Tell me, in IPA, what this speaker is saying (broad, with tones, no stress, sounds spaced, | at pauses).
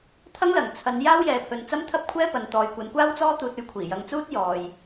t̪ʰ ɐ˥ ŋ l ɐ˨˩ ŋ t͡sʰ ɐ˨˧ n j aː˥ w j ɛː˨ pʰ ɵ˨ n t͡s ɐ˥ m t̪ʰ ɐ˥ p̚ kʷʰ ɛː˥ p ɐ˨ n t̪ ɔː˨ j kʷ ɐ˨˧ n kʷ aː˥ w t͡s ɔː˥ t̪ uː˧ t̚ ɵ˧ ɥ kʷʰ iː˨˩ j ɐ˨˧ ŋ t͡s uː˥ t̚ j ɔː˨ j